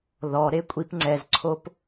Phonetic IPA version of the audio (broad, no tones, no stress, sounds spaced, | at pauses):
ð ɔ ɾ e kʷʼ i p ŋ͡ǀ ɛ z ǀʰ o p